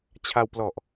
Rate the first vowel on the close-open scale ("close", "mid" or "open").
open